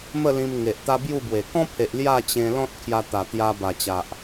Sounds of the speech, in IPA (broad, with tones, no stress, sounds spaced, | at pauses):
m ə˥˧ l ĩ˧ m ŋ e˨ ʔ t̪ a˦ b j u˥˧ b w e˨˩ k ɔ̃˦ pʰ e˨ ʔ l j a˥˧ t͡ɕ ẽ˧ l ɔ̃˦ t̚ kʰ j a˧ t̪ a˨˩ t̪ j a˧ b a˨˩ t͡ɕ a˨ ʔ